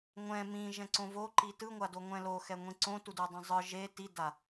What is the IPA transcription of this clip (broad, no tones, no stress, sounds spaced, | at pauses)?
ŋʷ ɛ̃ m ĩ ʒ ɛ̃ ǀ õ v o ǃ i t ɯ ŋʷ a d o ŋʷ ɛ̃ l o x ɛ ŋʷ ĩ ǀ õ t u d u dˤ ũ zˤ ɯ ʒ e t i d a